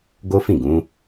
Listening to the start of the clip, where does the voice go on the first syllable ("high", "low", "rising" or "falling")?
high